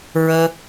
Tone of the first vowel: high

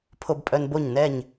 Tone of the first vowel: high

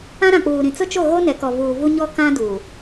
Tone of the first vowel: high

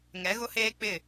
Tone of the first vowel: rising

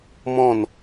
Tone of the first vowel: falling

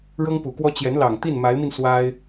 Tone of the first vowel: high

